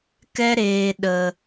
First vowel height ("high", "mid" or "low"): mid